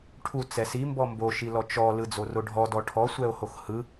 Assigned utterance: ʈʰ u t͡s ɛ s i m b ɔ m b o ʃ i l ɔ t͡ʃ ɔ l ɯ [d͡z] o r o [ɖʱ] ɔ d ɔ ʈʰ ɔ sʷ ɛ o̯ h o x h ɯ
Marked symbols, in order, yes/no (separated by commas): yes, yes